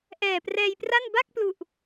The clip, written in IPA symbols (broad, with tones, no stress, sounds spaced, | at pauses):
ʔ ɛː˨˩ p r ɛː˧ j p r a˥˩ n b a˥˩ k̚ p l u˨˩ ʔ